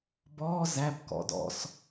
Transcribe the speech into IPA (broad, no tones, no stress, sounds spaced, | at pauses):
b ɔ z æ b k ɔ̰ d ɔ̰ s